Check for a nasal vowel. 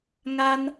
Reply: absent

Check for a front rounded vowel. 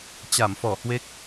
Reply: absent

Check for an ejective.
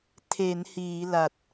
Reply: absent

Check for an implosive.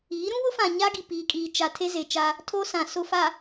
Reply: absent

